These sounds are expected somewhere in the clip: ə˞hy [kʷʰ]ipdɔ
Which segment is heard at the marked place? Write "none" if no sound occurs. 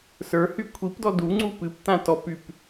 kʷʰ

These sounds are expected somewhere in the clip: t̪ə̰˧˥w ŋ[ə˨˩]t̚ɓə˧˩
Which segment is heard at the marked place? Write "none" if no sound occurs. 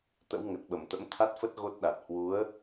ə˨˩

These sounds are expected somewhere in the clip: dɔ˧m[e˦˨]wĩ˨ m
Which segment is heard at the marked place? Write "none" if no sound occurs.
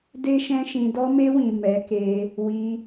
e˧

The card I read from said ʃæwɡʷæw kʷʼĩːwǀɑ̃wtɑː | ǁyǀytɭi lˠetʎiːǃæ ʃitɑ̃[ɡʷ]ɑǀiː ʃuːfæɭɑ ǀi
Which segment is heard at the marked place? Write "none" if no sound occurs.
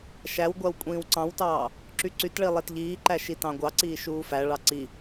ɡʷ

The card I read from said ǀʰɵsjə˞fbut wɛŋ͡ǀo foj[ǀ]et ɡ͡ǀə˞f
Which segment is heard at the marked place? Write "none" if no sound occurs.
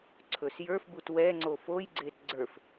ɡ͡ǀ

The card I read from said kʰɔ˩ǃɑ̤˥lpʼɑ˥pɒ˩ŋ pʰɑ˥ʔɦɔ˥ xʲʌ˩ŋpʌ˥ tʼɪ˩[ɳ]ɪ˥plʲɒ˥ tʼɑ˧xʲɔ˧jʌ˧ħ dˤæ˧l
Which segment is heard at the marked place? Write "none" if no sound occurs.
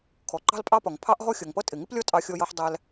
ŋ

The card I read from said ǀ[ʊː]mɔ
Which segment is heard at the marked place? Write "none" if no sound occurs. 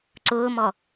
ʊː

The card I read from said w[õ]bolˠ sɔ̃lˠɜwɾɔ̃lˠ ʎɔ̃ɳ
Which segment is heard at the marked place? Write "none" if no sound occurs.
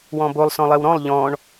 ɔ̃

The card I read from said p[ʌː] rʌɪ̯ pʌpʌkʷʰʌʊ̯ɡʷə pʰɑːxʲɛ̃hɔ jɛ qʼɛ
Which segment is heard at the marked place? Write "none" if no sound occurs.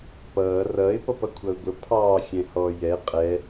ʌː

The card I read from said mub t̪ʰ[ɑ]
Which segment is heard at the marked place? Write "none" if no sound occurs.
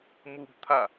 a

